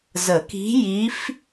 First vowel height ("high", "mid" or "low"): mid